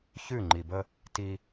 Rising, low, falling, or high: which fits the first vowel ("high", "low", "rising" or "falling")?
falling